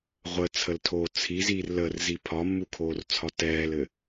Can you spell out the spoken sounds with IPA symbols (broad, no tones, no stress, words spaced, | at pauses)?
ʁʷət͡sʰəltʰoː t͡sʰiziːr lərzi pʰɒmːukʰoːrt͡sʰɒ tɛːlɘ